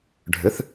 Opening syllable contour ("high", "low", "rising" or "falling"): rising